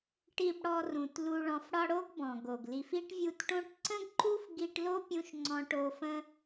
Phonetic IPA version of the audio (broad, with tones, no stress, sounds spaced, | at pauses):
ʈ i˨ b ɽ ɔ˨ r ũ˩ t l u˨ ɭ ɔ̃˨ f ɽ ɒ˦ ɽ o˥ ɡ b ɔ̃˩ ɡ o˩ ɡ l i˨ f i˥ ʈ vʲ u˦ t ʈ õ˦ ʈ ǀ ə̃˥ ɡ ǃ u˥ f ɡ i˦ ʈ l o˥ pʲ ũ˦ ʃ ŋ͡ǀ ɔ̃˥ ʈ o˥ f ə̃˥